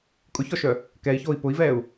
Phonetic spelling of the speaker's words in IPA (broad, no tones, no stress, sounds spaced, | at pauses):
kʼ ʊ ç ɔ ʃ œ | k ɛ i̯ ç oː i̯ p ʊ i̯ v ɛː u̯